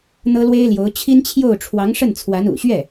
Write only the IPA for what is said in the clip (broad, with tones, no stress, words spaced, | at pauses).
n̪ɤ˥lwe˥ɪ̯ljo˧˥ʊ̯ t͡ɕʰi˥nt͡ɕʰjo˥˩ʊ̯ ʈ͡ʂʰwɑ˧˥ŋʂə˥˩nt͡sʰwa˧˥n ṵ˨˩ɕɥɛ˥˩